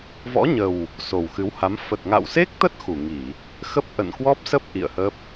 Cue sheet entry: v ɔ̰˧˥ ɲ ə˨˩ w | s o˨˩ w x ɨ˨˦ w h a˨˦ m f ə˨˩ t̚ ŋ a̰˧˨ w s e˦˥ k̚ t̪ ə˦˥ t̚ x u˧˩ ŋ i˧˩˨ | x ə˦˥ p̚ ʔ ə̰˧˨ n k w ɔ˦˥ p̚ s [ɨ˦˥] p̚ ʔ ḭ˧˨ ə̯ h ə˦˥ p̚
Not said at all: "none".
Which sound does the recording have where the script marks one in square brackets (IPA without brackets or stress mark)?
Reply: ə˦˥